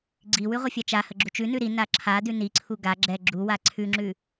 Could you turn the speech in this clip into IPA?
ɡ͡ǀiwʉ ʁʷəfʲat͡ʃahə ɡ͡ǁut͡ʃʉnʉ ɾi naǁʰadʉ niǀʰu ɡa ɡ͡ǁɛ ɡ͡ǁuwa ǀʰʉŋ͡ǁʉ

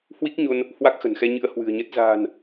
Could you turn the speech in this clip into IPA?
hwi˦˥k̚ɲo˧n | hwa˦˥k̚xə̤˨˩nxɛ˧ ɲɨ̰˧˥ə̯hwɨ̤˨˩ə̯ɲə˦˥t̚ za̤ː˨˩n

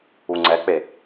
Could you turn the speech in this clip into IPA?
uŋ͡ǀɛk͡pe

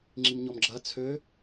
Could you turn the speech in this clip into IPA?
ŋ͡ǁimɲɔmɡ͡ǁɐ t͡sʰø

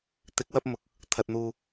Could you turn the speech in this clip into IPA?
t̪ɪ˨˥k̚wɐ˧p̚ mʊ˨k̚ | t̪ʰɐ˨t̚n̪uː˨

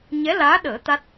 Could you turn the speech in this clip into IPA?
ɲɛ˧˥laː˧˥ɗəː˨˩˦ t̪a˦˥t̚

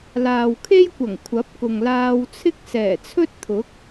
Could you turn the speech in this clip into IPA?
laː˨wkʰe˥jkʷɐ˨˩ŋ kʷʰɐ˨˥p̚kʊ˨ŋlaː˧wt͡sʰɪ˥k̚ sɛː˨˩t͡sʰɵ˥t̚t̪ʰʊ˨˥k̚

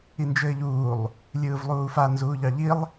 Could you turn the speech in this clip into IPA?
ind͡ʒɘːʎuːlˠ | lʲɯːvlˠuːfa nzuːʎɑʎilˠ

